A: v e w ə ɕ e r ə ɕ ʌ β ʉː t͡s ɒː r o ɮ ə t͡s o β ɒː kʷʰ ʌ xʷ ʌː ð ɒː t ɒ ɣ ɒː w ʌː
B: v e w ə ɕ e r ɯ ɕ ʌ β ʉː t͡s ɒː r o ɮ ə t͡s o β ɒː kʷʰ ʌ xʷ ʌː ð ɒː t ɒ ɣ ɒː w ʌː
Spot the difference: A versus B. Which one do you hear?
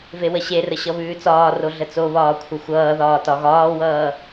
A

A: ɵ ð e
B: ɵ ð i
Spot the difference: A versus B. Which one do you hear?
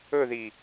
B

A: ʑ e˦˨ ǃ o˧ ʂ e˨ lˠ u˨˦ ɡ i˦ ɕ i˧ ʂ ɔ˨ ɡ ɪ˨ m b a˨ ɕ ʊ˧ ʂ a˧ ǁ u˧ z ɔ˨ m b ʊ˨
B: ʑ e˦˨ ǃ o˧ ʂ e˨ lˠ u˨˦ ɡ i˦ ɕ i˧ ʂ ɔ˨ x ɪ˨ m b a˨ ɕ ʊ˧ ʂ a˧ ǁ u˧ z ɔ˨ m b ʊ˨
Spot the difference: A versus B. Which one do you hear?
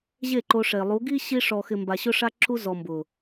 B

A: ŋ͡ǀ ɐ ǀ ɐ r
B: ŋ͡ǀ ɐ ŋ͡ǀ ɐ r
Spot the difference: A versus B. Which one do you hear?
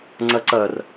A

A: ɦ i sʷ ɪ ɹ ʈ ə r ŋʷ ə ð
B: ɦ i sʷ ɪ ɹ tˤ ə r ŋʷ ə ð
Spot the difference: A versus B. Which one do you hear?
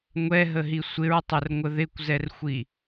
B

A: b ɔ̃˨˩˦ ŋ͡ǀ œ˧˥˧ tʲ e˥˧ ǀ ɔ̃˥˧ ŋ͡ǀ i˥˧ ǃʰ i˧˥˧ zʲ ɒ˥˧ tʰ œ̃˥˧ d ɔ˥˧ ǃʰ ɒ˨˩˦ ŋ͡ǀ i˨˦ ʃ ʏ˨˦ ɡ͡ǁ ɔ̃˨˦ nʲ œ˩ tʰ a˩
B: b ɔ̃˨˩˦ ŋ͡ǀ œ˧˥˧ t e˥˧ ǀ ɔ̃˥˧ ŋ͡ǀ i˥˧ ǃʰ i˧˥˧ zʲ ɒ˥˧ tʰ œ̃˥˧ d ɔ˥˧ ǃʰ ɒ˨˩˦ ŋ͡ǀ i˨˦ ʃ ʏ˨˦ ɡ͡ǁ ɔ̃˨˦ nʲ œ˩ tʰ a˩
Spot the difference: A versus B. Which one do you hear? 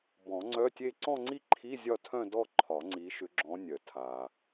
A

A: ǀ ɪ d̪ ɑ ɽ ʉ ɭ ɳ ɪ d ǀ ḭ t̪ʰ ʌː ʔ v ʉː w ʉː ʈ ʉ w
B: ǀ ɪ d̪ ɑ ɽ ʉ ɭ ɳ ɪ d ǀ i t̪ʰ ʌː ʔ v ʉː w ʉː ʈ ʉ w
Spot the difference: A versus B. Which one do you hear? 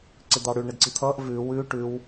B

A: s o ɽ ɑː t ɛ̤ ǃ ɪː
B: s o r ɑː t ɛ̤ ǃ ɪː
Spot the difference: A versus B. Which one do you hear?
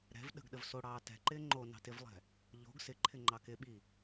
A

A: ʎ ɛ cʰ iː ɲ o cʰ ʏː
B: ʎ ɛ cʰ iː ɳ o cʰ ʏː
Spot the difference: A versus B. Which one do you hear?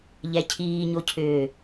A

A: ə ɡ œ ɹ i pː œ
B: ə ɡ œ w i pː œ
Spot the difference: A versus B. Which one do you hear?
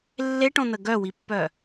B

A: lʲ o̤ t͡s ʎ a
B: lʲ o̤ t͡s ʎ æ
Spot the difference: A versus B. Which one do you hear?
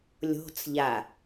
A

